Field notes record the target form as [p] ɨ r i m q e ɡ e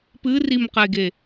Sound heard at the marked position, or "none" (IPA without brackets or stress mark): p